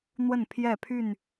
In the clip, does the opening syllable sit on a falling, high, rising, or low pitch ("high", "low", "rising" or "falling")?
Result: falling